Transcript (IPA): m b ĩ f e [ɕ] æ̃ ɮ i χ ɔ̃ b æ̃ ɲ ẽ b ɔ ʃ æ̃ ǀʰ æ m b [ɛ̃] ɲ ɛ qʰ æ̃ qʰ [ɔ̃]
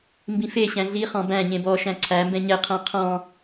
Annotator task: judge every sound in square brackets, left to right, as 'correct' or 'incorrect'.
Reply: correct, correct, correct

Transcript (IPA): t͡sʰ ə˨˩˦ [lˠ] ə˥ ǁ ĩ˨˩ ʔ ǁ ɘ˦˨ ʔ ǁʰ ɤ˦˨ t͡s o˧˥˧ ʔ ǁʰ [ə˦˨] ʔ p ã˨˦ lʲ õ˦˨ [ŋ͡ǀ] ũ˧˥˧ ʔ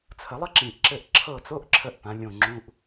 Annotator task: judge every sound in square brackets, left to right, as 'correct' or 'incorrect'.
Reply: correct, incorrect: ə˥, incorrect: ŋ͡ǁ

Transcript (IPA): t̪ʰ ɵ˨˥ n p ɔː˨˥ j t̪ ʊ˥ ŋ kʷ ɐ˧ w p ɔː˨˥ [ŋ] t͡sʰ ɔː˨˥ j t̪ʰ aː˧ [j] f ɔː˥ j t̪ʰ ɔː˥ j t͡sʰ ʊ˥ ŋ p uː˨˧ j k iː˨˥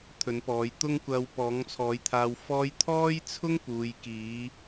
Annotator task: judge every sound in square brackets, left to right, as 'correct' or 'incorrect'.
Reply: correct, incorrect: w

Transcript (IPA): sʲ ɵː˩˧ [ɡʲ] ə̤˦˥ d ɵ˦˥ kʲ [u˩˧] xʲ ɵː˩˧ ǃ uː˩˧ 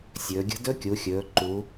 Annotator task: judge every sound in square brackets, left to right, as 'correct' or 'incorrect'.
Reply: correct, correct

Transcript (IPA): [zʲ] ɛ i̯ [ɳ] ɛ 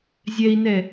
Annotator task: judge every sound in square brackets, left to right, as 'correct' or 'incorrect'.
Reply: correct, incorrect: n

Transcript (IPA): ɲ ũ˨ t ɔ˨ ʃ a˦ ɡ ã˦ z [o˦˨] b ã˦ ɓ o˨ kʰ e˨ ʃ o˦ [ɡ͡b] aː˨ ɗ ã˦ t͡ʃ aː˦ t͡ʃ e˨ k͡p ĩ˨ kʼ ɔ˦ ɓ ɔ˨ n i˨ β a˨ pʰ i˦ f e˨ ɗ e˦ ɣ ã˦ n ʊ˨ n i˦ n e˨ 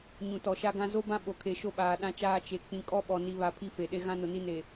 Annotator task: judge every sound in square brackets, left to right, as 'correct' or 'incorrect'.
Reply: incorrect: o˦, incorrect: ɓ

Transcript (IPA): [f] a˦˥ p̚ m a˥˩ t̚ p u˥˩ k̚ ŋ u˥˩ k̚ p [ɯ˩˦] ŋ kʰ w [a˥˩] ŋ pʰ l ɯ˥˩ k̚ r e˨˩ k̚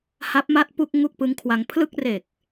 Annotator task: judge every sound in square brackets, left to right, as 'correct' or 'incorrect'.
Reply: incorrect: h, incorrect: ɯ˦˥, incorrect: a˧

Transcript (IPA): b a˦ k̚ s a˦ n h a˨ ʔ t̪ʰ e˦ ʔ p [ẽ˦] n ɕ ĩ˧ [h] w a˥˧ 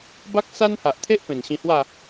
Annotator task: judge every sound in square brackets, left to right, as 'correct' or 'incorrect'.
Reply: incorrect: ẽ˨˩, correct

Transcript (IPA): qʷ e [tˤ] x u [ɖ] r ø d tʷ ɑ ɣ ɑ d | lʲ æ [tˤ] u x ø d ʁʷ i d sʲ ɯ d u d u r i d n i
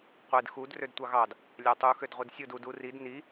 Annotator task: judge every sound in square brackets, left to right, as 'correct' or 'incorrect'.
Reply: incorrect: d, incorrect: d, correct

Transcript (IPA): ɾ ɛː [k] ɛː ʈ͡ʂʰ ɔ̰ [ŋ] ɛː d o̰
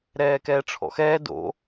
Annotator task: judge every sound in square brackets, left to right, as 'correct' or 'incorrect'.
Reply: correct, incorrect: x

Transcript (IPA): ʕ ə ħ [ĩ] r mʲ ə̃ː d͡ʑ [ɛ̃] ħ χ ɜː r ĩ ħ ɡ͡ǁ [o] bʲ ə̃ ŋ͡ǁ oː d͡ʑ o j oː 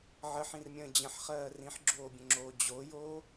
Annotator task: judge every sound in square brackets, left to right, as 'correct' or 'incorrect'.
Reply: correct, incorrect: ə̃, incorrect: oː

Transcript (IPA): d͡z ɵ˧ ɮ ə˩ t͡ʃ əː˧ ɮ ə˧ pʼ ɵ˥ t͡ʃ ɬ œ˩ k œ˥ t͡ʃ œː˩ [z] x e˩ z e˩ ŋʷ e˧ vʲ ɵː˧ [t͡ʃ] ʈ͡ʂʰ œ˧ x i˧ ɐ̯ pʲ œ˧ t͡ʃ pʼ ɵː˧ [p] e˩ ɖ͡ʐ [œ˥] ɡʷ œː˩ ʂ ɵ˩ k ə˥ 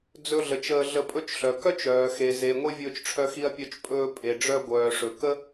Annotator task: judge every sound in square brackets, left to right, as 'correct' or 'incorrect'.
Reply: incorrect: none, correct, incorrect: pʼ, incorrect: œ˧

